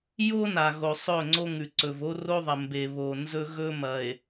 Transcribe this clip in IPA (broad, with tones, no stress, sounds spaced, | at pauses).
j o˦ n a˨ ɣ o˨ sˤ ɵ˦˨ ŋ͡ǀ o˦ ŋ ʉ˨ ǀ ɵ˨ v o˦ r o˦ ðˤ ɐ˨ m b e˨ β o˨ n z ɵ˦ ɣ ɵ˦ m ɐ˨ e̯